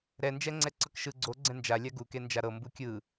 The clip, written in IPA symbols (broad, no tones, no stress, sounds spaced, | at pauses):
ɾ ɛ n d͡ʒ ɛ ŋ͡ǀ ɛ ǀ ɤ k ʃ ɯ ɡ͡ǀ o ɡ͡ǀ ɛ̃ n d͡ʒ a lʲ a ɡ u k e n d͡ʒ a ɾ ɤ m b u kʲ ɯ